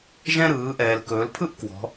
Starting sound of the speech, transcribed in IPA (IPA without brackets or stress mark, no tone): ʒ